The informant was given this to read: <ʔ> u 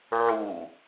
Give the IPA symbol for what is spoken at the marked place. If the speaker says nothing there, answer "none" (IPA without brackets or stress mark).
ʕ